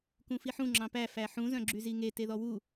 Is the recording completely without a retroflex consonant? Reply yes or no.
yes